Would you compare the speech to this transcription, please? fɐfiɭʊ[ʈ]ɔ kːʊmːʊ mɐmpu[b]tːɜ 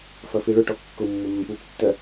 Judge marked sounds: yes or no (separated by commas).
yes, no